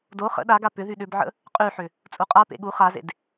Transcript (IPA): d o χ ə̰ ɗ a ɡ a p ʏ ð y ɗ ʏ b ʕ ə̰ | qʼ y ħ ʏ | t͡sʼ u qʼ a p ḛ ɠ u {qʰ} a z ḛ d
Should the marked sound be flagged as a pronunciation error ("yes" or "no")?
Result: yes